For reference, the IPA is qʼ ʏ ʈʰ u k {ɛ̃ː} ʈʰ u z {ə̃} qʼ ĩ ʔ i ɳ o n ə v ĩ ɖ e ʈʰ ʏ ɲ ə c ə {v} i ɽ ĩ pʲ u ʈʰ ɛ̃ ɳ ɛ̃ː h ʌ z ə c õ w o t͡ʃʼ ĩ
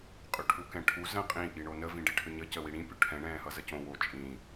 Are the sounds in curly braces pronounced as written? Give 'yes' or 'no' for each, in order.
no, yes, no

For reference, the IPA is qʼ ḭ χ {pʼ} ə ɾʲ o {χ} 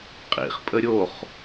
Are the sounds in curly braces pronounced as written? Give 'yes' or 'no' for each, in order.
yes, yes

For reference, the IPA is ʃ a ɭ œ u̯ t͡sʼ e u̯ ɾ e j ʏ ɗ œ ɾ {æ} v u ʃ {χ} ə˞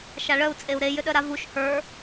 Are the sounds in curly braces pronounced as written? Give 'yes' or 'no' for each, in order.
no, no

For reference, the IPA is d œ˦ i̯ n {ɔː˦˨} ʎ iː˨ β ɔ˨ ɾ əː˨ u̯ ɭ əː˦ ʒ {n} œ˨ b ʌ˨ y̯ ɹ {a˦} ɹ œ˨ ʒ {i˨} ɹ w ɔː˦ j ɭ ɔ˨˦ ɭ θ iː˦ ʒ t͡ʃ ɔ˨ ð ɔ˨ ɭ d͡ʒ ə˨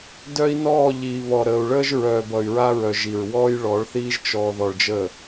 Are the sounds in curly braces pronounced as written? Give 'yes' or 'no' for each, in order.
yes, no, yes, yes

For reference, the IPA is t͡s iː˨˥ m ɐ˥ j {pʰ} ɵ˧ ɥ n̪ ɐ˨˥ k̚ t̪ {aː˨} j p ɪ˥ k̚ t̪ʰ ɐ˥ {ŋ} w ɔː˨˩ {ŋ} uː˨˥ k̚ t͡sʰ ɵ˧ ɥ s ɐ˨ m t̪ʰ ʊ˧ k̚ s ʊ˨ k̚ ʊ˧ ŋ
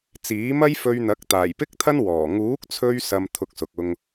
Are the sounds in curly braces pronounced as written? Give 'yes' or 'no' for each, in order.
no, no, no, yes

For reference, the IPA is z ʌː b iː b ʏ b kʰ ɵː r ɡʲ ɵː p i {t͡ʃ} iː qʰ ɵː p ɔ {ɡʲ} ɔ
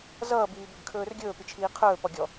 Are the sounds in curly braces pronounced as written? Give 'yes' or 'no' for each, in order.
no, yes

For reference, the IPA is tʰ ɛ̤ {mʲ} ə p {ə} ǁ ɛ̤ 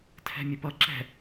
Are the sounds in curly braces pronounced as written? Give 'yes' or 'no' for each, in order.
yes, no

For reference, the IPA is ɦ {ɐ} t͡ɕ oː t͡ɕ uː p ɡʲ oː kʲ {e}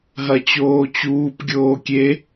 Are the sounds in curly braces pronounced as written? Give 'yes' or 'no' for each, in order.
yes, yes

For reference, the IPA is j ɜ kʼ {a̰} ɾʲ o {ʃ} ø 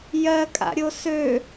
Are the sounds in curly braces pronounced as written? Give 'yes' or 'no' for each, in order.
yes, no

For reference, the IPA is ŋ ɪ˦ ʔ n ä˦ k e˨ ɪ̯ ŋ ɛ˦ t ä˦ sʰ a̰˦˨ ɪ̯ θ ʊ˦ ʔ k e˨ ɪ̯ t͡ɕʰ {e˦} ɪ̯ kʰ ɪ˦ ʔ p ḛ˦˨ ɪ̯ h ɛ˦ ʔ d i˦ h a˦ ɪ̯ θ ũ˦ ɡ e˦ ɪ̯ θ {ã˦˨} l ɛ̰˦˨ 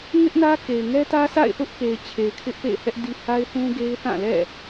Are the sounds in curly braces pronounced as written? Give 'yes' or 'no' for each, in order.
no, yes

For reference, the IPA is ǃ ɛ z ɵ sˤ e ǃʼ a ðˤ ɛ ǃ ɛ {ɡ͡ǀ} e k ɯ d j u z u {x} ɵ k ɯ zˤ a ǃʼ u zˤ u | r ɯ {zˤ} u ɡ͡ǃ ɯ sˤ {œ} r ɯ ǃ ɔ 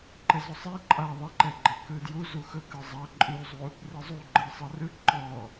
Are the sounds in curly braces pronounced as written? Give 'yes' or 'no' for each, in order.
no, yes, yes, no

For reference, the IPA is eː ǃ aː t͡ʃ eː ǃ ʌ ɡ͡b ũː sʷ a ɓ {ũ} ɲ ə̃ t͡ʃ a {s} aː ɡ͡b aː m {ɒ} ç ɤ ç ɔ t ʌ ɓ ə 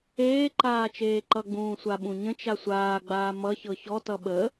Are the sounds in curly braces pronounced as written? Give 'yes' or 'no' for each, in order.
yes, no, no

